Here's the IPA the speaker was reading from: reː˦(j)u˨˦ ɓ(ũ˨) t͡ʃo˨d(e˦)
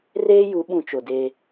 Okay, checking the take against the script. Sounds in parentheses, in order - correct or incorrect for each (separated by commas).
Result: correct, correct, incorrect